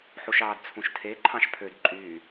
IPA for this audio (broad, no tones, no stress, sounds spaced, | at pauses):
ħ u ʃ ɑː d t͡sʰ ũ ʃ tʰ e ǃʰ ɑ̃ ʃ pʰ ø d ǃʼ yː